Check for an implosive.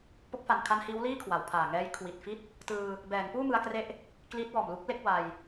absent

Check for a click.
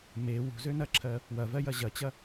present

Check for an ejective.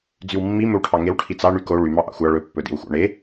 absent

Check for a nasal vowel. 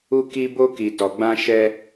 present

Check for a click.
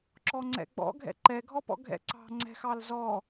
present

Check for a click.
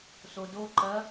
present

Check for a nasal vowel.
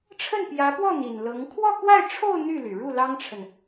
absent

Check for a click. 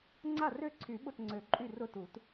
present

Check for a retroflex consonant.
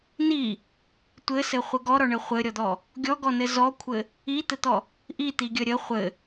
present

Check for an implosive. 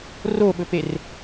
present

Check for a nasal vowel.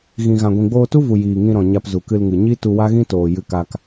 present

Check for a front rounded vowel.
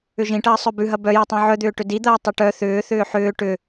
present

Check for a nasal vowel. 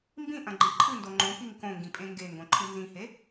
present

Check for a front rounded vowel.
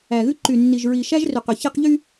present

